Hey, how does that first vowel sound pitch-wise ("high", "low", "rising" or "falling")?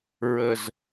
low